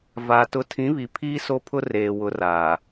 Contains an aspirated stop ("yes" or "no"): yes